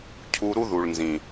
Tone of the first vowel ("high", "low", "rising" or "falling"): low